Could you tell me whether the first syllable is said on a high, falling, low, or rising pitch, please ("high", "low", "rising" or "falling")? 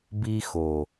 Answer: high